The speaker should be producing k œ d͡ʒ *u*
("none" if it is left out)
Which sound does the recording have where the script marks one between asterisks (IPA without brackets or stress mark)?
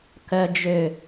ø